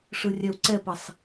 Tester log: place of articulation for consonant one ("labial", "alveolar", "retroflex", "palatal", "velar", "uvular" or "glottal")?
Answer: retroflex